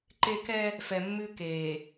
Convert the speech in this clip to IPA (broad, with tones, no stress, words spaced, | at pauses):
ǃe˦ kɛ˦ | fɛ˨mːʉ˦ keː˨